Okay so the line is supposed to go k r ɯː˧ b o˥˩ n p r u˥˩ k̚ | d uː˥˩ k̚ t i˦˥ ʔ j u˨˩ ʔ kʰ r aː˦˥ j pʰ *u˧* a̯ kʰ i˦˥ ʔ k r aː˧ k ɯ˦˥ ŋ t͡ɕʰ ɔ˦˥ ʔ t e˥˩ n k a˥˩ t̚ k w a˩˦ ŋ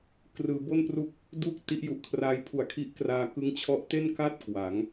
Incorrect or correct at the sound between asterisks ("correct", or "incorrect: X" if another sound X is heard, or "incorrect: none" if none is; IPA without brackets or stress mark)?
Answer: incorrect: u˨˩